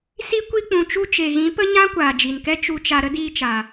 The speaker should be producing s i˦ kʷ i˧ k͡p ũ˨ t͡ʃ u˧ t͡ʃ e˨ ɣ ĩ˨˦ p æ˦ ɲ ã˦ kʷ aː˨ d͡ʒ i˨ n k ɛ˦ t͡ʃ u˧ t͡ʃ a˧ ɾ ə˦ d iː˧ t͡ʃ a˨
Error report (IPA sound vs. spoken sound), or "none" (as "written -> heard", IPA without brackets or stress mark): æ˦ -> ə˦